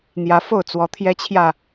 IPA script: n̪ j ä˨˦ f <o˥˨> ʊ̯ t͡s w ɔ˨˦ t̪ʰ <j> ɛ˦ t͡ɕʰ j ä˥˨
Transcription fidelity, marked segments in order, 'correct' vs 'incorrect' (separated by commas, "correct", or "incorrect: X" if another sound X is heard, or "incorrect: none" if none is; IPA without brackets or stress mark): correct, correct